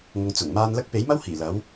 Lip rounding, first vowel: rounded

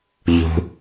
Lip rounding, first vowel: rounded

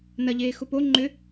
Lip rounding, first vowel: unrounded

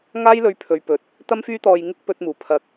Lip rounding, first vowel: unrounded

